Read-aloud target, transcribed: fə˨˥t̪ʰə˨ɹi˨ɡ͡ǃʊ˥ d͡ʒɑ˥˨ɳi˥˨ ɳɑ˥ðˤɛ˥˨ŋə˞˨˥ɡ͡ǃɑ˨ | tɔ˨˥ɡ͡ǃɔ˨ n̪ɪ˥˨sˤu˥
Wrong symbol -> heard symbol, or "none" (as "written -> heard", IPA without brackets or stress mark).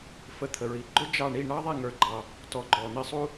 none